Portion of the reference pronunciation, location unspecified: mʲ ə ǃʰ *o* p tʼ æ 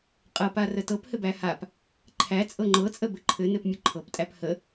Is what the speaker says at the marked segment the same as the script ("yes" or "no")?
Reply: no